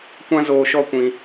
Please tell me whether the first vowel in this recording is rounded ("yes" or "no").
no